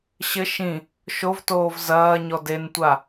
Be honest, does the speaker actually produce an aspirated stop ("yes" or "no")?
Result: no